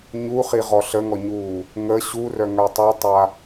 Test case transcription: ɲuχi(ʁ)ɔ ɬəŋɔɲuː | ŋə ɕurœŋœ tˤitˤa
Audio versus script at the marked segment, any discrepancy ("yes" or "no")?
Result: no